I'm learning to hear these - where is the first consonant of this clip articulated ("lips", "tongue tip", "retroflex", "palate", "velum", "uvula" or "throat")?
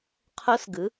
uvula